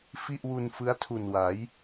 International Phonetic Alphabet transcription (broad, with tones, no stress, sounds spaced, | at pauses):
f i˥˩ ʔ w u˧ n f ɯ˦˥ a̯ tʰ u˨˩ n w a˩˦ j